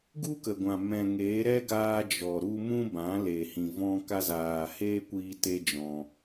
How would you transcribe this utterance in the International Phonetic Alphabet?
ɡ u˦ k ə˨ ɡʷ ã˨ m ɛ̃˨ ŋ eː˨˦ ɾ ɛ˦ ɡ aː˧ d͡ʒ ɔ˨ ɾ u˧ m ũ˦ b ã˨˦ l e˨ h ĩ˨ v ɔ̃˧ k a˧ z aː˨ h eː˦ kʷ iː˧ t e˦ d͡ʒ ɔ̃˧

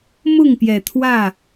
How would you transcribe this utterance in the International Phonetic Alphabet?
m ʊ˥˨ ŋ p j ɛ˨˩ t̪ʰ w ä˥˨

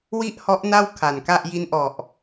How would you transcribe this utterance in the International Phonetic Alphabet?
w i˥˩ ʔ h ɔ˦˥ ʔ n a˥˩ w kʰ a˨˩ n k a˥˩ ʔ j i˧ n ʔ ɔ˨˩ ʔ

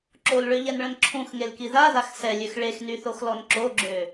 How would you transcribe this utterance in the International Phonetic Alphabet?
ǁ o l ɭ ø ʎ ɛ n ɭ ə̃ n ǁʰ ũ x ŋ e l k i ð a ð a x s ɛ lʲ ø x ɭ e x n y θ o x l ɔ n ǁ o ɡ͡ǁ ø

